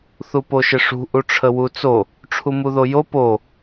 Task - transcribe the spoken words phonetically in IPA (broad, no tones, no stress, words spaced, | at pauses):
θupoʃɪʂṳ ʔuʈ͡ʂʰəwut͡so | ʈ͡ʂʰumuðojo po